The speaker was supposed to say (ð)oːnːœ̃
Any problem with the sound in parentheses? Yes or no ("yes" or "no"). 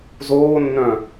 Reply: yes